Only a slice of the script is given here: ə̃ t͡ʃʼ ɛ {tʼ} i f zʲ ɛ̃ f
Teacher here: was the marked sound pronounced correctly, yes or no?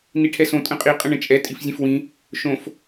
yes